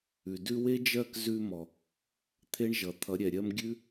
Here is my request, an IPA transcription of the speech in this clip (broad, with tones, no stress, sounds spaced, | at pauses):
ʉ˨ d ʉ˧ w e˦ d͡ʒ ɜ˦˨ k z ʉ˧ m ɔ˨ | t̪ʰ e˦ ɳ ʒ ʌ˨ t̪ʰ ʌ˨˦ ɾʲ ɛ˨ ɾʲ ɜ˧ m ɡʲ ʉ˦